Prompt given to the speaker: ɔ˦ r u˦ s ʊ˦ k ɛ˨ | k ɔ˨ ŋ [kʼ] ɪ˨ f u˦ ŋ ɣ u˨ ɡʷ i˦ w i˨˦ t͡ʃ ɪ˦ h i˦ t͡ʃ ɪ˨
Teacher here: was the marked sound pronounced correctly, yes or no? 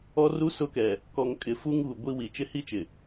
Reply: yes